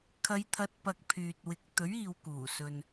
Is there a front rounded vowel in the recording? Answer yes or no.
yes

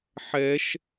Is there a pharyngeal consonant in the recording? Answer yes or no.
yes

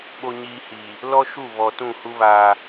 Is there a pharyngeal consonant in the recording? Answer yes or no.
no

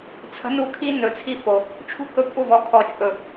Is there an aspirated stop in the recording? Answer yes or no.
yes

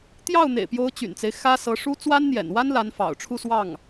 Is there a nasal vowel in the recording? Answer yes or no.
no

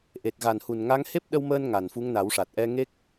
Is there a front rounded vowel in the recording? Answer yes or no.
no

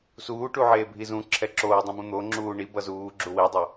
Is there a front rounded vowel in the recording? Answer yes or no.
no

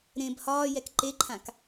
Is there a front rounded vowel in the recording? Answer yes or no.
no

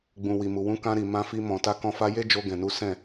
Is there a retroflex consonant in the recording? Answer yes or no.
no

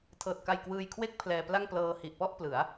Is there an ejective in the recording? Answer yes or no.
no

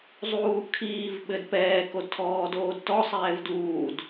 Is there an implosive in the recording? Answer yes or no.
yes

